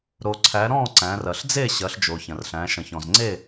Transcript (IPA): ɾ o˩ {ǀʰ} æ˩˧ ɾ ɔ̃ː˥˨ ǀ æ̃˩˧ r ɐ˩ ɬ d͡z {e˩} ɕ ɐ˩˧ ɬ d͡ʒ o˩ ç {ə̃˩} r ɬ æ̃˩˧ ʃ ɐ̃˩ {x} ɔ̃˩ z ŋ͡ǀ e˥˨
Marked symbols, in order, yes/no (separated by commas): yes, no, no, no